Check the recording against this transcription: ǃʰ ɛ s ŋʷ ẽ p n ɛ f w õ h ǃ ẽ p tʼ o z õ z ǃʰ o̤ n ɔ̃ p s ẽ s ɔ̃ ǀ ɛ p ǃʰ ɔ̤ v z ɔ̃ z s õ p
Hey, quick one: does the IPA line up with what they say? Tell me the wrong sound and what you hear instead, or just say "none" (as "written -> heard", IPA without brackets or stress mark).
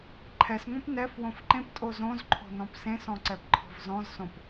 h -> f